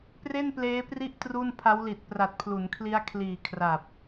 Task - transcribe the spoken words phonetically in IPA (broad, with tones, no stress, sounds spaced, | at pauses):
p r e˥˩ n p l eː˦˥ p r i˦˥ ʔ t r u˥˩ n pʰ a˦˥ w l i˨˩ t̚ p r a˨˩ t̚ pʰ l u˩˦ n kʰ l i˦˥ a̯ kʰ l iː˨˩ kʰ r a˨˩ p̚